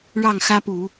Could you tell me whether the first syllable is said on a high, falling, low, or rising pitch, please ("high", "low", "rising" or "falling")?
falling